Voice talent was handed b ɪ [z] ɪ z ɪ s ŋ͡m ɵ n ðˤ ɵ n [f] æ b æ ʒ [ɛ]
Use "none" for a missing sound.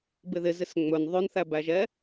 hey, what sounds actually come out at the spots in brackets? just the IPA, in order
ð, θ, ɛ

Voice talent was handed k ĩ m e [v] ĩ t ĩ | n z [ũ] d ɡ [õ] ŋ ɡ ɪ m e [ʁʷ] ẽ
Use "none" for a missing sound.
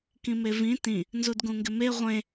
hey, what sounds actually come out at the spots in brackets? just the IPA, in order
v, u, ũ, ʁʷ

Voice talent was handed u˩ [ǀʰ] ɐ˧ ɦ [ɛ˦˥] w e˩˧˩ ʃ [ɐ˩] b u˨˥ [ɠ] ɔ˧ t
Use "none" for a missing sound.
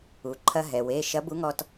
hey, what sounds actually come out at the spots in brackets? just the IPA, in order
ǃʰ, ɛ˩, ɐ˨˥, ŋ

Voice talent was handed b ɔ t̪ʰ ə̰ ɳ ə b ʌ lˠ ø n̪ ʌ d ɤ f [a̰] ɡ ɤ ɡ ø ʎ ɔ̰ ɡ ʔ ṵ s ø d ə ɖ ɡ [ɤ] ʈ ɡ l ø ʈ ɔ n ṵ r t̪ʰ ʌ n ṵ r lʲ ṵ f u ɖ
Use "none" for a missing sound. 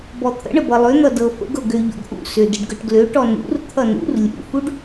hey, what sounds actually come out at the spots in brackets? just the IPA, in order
ə̰, ɤ

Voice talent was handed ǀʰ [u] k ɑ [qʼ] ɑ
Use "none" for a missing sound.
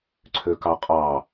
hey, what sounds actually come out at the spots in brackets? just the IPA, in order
ø, qʼ

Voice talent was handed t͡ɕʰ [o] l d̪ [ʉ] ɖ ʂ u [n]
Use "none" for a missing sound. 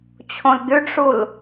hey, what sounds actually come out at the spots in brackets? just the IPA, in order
õ, ʉ, l

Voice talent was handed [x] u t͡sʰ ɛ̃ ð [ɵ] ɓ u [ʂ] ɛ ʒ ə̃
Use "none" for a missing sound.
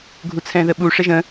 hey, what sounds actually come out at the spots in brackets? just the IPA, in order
ɡʱ, ə, ʂ

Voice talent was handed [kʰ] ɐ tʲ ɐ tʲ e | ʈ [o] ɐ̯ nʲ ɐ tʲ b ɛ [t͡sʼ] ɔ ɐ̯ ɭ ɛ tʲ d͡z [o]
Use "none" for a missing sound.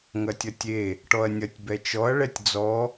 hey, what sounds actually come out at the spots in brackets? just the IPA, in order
ŋ, ɔ, t͡ʃ, ɔ

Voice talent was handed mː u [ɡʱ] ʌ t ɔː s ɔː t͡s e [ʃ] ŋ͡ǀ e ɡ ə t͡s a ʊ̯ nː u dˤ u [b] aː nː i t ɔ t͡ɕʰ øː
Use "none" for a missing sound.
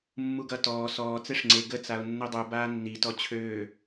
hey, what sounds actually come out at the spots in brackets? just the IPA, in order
ɡ, ʂ, b

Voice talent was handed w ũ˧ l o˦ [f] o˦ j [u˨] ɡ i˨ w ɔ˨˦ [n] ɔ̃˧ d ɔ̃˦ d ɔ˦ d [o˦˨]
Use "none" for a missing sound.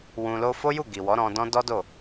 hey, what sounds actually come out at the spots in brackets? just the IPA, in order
f, u˦˨, ɾ, o˦˨

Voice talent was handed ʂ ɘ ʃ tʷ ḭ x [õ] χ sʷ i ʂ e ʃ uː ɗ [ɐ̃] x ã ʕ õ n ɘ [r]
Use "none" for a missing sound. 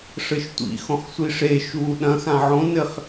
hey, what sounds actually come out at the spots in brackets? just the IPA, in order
õ, ɐ̃, χ

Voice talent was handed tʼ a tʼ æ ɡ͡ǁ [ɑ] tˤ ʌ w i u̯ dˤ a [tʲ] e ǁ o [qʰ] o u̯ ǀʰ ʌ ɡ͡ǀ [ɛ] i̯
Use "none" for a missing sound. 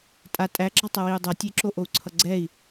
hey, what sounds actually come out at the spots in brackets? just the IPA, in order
ɑ, tʲ, ʔ, ɛ

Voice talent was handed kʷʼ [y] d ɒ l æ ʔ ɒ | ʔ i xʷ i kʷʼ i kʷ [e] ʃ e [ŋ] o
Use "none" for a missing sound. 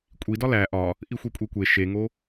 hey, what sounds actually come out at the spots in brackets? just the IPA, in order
i, e, ŋ

